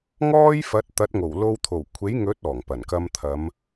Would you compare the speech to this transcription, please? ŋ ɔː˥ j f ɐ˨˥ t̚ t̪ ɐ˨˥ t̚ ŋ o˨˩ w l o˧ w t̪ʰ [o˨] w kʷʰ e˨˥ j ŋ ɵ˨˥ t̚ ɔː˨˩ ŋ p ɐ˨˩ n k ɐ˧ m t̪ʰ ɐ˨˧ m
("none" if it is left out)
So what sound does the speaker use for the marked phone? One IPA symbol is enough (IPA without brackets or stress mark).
o˨˩